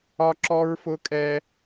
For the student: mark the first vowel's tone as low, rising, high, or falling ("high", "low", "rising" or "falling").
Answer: high